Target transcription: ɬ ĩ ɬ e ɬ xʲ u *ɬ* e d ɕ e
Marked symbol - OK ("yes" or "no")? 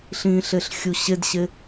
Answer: no